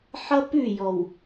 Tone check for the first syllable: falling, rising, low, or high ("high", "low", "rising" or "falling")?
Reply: high